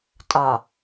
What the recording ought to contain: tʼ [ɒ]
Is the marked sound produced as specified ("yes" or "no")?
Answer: yes